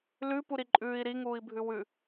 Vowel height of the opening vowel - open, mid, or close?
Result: close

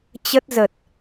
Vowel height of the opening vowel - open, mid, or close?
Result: mid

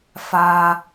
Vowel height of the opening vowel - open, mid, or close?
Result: open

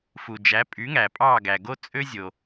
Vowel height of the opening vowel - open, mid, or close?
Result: close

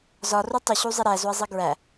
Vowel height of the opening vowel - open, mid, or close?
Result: open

